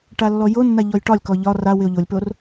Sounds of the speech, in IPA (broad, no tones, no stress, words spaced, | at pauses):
ʈalːɔjonːa ʎɔjʈɒlʲkɔ ʎɒ ra wɪo̯ʎolʲpor